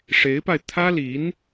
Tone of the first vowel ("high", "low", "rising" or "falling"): rising